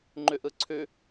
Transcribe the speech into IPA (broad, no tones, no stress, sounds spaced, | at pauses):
ŋ͡ǃ ʉ ʔ ɯ ǀʰ ʉ